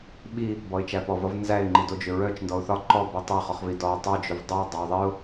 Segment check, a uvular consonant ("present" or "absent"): present